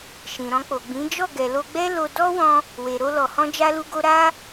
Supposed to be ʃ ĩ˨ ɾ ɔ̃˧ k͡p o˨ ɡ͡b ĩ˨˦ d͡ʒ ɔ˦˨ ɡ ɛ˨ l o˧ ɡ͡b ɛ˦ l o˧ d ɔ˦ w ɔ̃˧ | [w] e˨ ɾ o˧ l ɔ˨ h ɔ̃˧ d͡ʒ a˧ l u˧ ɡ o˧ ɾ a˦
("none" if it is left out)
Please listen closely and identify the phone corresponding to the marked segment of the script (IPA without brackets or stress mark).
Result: w